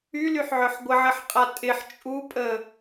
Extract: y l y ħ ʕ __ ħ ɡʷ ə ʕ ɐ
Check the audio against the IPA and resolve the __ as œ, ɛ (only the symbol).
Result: œ